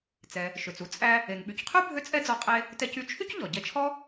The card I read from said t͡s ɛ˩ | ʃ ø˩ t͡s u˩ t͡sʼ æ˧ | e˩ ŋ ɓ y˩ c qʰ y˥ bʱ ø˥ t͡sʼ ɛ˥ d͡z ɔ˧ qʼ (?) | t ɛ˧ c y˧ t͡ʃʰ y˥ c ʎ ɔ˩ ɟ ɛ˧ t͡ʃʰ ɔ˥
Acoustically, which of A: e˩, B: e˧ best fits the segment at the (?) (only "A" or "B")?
B